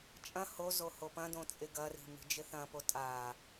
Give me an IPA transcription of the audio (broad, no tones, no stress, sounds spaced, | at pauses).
t͡ʃʼ ɐ̃ h o z o h o p ɐ̃ d õ t͡sʼ ɪ ɡ ɐ r i̤ m i̤ d͡ʒ ɪ θ ɐ̃ p o tʼ a